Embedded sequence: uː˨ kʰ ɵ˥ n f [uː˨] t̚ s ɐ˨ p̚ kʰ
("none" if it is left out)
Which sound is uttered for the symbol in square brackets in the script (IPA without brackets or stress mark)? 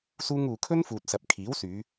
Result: uː˨